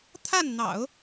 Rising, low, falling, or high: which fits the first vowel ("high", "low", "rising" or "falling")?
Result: falling